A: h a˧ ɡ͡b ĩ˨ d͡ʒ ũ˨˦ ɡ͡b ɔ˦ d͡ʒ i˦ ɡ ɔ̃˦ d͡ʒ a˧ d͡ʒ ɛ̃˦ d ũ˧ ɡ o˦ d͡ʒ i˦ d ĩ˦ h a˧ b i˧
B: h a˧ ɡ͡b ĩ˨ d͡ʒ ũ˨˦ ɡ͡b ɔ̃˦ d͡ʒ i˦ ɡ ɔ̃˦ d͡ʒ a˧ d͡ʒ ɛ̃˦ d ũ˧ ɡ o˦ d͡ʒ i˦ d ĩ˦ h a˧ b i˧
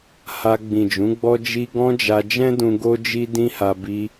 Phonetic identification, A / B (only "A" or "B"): A